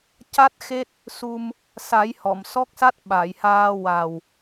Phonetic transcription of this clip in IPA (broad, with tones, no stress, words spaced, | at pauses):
ca˦˥t̚xe˦˥t̚ | su˧m | sa˨˩˦j hɔ˨˩˨m sɔ˦˥k̚sa˦˥t̚ ɓa˨˩˨jhaː˧ wa˨˩w